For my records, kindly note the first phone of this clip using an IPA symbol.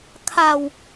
kʰ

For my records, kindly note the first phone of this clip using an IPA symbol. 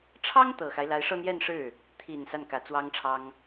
ʈ͡ʂʰ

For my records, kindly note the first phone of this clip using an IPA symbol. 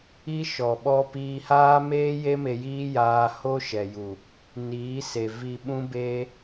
i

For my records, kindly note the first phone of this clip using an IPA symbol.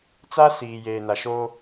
t͡s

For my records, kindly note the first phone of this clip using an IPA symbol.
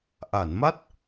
ʔ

